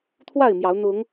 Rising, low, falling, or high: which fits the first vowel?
falling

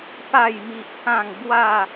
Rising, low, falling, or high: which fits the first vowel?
falling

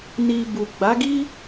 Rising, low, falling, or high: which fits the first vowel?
low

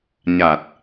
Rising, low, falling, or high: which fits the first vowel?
low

